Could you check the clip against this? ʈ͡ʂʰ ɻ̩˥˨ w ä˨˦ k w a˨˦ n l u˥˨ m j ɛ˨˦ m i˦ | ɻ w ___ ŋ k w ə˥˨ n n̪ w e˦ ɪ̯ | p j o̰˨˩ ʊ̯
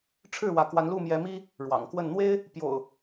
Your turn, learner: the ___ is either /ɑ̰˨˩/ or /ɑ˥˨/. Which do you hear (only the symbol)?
ɑ̰˨˩